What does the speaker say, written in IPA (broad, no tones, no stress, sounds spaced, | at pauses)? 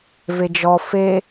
v e d͡ʒ ɔ f e